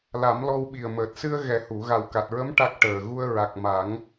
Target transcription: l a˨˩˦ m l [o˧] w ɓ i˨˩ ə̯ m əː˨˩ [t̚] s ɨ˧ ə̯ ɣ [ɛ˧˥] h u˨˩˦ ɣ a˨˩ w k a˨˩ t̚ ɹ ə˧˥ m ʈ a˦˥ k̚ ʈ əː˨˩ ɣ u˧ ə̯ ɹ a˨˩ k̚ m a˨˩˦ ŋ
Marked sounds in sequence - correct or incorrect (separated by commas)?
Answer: incorrect, correct, incorrect